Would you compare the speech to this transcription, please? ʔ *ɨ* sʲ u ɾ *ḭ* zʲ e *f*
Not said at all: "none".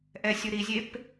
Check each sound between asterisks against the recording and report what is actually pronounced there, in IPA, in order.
ɛ, i, p

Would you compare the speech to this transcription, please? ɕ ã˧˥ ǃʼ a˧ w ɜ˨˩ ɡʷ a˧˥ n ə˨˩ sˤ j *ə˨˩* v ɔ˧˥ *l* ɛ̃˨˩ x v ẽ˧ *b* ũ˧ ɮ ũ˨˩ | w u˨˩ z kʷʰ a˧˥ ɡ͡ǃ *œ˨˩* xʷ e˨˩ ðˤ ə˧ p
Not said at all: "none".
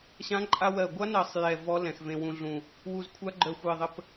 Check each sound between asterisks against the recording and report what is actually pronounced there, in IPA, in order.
ɛ˨˩, l, w, œ˨˩

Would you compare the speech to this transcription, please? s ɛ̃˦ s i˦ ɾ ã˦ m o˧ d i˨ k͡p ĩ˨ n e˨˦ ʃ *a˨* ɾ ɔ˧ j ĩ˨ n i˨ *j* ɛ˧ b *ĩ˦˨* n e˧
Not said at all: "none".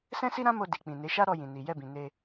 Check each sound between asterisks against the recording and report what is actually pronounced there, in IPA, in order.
a˦, j, ĩ˨

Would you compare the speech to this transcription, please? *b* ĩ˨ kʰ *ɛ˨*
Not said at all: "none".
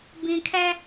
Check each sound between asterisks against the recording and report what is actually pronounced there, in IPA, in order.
b, ɛ˦

